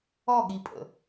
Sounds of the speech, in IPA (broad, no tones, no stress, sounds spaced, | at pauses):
ɔ ɠ i pʼ ə̰